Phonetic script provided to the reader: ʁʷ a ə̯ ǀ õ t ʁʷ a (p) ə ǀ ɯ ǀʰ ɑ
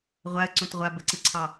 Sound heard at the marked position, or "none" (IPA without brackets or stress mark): b